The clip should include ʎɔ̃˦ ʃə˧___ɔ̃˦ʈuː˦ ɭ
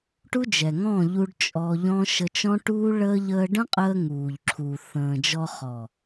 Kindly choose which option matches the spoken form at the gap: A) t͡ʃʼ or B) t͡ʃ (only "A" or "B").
B